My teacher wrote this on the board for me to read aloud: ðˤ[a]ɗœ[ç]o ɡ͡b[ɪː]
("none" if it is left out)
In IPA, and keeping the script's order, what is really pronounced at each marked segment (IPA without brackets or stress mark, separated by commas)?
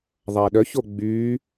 a, ç, yː